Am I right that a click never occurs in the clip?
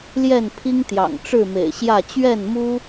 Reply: yes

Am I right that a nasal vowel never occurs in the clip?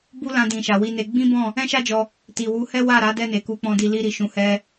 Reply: no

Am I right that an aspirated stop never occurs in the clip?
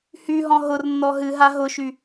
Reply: yes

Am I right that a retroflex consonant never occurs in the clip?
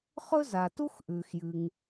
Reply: yes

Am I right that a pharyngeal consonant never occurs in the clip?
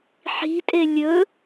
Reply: no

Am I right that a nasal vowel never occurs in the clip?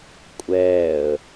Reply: yes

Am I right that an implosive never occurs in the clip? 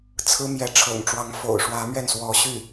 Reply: yes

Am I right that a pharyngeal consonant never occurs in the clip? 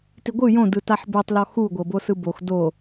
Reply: no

